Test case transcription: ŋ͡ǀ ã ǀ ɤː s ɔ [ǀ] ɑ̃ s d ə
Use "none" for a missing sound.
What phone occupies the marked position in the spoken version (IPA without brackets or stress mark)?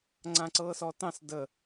t